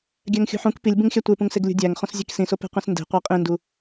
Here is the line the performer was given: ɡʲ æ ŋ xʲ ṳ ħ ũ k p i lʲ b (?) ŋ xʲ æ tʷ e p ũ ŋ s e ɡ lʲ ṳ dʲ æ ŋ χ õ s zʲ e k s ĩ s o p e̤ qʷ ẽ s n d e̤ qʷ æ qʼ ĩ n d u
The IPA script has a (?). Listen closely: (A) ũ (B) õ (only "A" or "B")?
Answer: A